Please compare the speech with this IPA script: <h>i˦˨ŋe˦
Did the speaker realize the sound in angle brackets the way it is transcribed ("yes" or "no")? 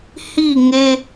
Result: yes